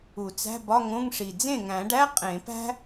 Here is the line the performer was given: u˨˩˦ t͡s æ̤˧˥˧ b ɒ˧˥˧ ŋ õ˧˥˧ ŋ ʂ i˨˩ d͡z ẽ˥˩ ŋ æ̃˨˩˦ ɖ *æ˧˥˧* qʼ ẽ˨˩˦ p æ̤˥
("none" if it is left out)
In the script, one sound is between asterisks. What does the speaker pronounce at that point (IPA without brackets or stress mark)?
æ˧˥˧